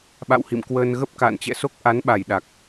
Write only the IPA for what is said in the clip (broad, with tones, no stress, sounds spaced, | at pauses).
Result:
ɓ a̰˧˨ w h ḭ˧˨ m k w əː˧ n ɣ ə˦˥ p̚ k a̰ː˧˨ n t͡ɕ ɛ̰˧˨ s o˦˥ k̚ ʔ a˨˦ n ɓ a˧˩ j ɗ a˨˩ k̚